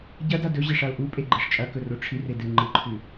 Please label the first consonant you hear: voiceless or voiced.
voiced